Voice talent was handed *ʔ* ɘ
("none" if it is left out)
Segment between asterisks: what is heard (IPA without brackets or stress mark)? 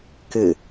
k